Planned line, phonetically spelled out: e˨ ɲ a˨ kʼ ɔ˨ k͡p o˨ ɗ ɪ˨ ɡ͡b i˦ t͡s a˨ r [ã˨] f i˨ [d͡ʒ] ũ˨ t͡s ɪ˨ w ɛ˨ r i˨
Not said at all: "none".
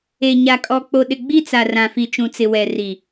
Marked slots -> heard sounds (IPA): ã˨, t͡ʃ

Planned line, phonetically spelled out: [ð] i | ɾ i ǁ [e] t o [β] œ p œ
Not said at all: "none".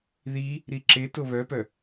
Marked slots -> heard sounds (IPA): ð, e, β

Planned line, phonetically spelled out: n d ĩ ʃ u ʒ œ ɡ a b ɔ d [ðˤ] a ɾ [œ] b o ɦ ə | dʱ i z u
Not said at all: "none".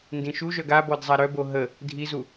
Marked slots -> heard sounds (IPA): zˤ, œ

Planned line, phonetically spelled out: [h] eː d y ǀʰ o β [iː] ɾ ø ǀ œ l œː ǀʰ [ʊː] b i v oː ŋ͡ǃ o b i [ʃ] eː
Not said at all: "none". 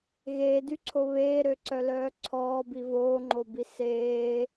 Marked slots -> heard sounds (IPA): ɣ, eː, ɔː, s

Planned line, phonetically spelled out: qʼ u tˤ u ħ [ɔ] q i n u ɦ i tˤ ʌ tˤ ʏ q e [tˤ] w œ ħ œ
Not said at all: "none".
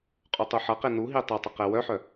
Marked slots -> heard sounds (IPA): ʌ, none

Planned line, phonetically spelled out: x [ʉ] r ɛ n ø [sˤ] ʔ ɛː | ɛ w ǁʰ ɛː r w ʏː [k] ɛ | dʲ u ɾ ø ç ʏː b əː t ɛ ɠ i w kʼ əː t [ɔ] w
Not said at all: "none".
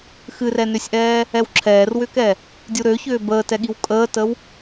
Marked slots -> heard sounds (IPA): ɨ, sʲ, k, ə

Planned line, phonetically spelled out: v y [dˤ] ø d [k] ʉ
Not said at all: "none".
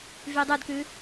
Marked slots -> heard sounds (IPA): dˤ, k

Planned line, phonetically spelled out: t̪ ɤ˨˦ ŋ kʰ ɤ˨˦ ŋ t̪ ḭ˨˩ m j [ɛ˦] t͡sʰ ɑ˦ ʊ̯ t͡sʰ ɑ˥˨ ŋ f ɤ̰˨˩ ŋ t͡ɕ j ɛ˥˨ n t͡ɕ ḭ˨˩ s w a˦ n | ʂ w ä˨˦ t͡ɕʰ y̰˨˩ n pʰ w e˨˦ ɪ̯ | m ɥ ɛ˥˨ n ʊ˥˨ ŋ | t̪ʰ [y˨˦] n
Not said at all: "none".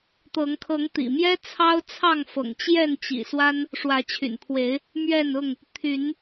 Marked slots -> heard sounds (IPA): ɛ˦, y˨˦

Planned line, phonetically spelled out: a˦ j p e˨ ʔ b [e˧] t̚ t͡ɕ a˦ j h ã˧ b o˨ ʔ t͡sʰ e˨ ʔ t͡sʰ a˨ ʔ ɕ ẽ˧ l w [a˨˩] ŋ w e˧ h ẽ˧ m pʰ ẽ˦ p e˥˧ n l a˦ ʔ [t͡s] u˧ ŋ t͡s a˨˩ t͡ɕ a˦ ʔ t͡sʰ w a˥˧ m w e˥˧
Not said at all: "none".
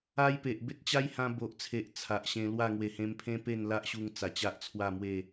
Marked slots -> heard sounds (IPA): e˦, a˥˧, ɕ

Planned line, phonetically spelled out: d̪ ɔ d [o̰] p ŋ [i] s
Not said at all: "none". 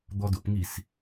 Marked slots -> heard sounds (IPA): o̰, i

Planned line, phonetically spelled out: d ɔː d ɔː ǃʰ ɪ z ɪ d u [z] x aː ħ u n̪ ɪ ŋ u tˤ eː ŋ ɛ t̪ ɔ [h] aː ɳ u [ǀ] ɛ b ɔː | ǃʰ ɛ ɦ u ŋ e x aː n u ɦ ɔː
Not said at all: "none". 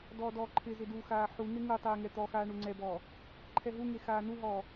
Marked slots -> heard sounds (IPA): none, x, ŋ͡ǀ

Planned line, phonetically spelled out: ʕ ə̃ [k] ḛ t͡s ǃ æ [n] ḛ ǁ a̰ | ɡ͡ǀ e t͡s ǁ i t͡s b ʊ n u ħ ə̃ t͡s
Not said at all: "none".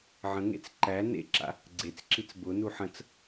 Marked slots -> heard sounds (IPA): ŋ, n

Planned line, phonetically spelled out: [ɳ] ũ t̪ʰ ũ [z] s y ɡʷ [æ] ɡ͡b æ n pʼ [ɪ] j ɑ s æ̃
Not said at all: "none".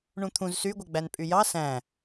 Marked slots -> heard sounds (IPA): ɳ, z, œ, y

